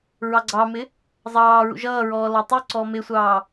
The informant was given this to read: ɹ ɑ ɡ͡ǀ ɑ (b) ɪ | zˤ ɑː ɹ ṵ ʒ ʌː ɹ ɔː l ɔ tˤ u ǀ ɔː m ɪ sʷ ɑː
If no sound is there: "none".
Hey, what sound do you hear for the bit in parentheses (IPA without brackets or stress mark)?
m